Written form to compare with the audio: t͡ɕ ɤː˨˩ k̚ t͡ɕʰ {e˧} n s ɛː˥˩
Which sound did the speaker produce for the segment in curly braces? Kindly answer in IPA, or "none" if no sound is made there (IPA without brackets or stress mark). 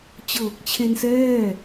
e˧